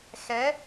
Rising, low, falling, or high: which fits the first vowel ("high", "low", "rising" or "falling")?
rising